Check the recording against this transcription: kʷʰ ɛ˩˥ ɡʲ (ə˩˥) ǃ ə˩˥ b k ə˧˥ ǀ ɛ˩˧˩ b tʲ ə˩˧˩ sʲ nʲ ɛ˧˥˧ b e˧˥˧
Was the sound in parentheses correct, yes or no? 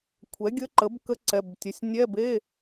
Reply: no